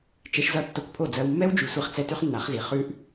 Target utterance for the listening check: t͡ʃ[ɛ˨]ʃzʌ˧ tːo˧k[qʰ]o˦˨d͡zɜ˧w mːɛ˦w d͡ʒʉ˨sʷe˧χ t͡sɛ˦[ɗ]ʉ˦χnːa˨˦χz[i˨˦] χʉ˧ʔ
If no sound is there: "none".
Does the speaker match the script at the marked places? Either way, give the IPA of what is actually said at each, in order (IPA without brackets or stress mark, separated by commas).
ɛ˧, pʰ, t, i˨˦